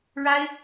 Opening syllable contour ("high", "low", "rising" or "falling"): high